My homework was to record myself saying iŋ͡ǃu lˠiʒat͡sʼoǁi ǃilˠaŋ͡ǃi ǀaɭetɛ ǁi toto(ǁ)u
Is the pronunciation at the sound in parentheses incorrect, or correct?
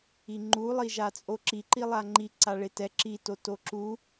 correct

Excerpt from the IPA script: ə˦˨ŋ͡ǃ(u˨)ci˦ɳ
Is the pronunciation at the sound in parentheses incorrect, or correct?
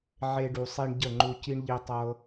incorrect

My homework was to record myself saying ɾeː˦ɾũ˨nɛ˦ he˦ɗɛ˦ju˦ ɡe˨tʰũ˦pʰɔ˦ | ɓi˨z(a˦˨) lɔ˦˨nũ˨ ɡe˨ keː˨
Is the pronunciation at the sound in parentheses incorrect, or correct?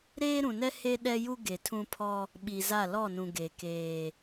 correct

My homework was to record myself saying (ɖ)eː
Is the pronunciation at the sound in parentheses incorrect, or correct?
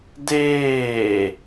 incorrect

